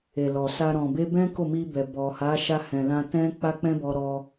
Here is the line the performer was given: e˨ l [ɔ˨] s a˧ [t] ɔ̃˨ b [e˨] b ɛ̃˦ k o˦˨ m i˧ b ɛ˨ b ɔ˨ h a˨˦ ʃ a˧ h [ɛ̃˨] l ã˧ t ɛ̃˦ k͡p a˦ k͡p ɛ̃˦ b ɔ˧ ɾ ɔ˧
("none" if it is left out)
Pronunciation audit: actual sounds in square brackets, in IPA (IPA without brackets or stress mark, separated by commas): ɔ˨, ɾ, e˧, ɛ̃˨